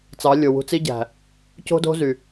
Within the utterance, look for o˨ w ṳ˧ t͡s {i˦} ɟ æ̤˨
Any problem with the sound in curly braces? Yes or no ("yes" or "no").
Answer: no